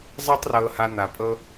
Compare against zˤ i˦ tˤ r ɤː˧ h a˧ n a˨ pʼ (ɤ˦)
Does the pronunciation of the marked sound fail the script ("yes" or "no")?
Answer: no